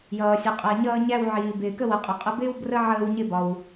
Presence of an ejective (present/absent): present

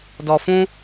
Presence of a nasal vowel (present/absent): present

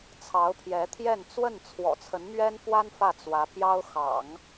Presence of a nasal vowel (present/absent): absent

